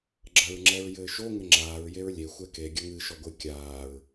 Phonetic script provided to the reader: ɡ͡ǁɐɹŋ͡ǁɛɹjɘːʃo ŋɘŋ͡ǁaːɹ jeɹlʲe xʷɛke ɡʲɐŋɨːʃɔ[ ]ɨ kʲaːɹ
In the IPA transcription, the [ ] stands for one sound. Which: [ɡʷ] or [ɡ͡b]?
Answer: ɡʷ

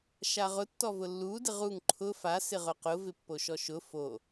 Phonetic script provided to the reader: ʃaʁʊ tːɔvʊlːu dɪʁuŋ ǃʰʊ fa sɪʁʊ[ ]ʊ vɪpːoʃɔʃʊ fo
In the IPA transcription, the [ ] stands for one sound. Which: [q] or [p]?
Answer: q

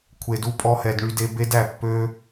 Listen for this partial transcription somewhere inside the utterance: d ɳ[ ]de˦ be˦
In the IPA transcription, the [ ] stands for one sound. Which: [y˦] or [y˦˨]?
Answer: y˦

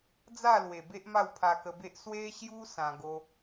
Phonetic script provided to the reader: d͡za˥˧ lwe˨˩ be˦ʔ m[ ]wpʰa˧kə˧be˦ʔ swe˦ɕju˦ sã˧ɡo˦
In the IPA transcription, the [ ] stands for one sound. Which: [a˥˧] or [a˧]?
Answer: a˥˧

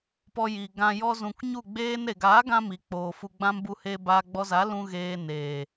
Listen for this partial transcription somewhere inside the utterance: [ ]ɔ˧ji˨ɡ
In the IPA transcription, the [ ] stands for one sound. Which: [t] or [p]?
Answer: p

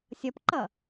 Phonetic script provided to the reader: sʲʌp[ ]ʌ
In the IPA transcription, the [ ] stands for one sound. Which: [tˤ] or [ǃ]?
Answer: ǃ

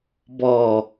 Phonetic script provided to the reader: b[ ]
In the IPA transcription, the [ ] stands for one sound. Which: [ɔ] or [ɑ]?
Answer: ɔ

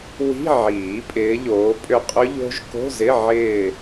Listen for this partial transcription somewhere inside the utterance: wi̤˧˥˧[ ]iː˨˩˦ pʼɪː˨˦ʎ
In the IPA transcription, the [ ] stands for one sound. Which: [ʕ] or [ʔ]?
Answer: ʕ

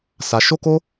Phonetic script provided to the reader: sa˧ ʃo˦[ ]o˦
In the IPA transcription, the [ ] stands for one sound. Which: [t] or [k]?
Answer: k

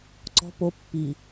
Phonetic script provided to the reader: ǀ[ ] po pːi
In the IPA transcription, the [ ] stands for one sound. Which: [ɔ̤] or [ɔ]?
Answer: ɔ̤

